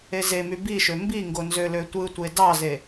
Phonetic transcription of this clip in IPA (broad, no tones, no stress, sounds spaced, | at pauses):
e z e m y b i ʃ ø m b i ŋ ɡ o n z ø l ø tʷ ɯ tʷ e d ɑ z e